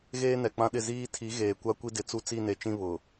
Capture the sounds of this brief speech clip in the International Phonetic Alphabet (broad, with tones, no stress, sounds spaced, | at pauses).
ɣ eː˦ n ɛ˨ k͡p ã˦ ɗ ɪ˦˨ z iː˦ tʰ i˨˦ ɣ eː˨ kʷ a˦ kʷ i˦ d ɪ˨˦ t͡s u˦ t͡s i˦˨ n e˨ t͡ʃ ĩ˦ β ʊ˨